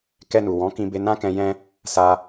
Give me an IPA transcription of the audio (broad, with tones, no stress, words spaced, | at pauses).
kɛ˧nu˨wɔ̃˨˦ kĩ˧be˧nã˦kɛ̃˧ jɛ̃˦ | sa˧